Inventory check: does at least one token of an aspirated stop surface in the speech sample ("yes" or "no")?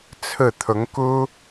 yes